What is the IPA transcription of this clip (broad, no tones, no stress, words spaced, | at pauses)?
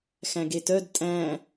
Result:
xæ̃ɡetœd tʼæ̃